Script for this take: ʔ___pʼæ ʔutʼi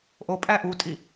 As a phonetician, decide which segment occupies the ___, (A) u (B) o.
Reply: B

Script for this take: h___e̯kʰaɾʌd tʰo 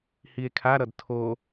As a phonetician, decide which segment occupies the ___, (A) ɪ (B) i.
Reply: B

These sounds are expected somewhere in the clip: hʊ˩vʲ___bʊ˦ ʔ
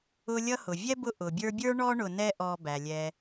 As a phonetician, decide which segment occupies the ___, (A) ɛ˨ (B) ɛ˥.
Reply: B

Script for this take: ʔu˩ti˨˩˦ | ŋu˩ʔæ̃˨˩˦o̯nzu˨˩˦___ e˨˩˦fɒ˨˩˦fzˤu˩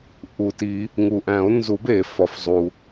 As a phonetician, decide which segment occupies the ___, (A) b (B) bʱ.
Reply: A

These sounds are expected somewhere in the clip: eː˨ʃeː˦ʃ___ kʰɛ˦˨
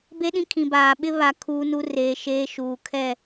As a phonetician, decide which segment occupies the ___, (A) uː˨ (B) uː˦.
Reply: A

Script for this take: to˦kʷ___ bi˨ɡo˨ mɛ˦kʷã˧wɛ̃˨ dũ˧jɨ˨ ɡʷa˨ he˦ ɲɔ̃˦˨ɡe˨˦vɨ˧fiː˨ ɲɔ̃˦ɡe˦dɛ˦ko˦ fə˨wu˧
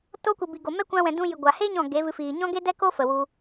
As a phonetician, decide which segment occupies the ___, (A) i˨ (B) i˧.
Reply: A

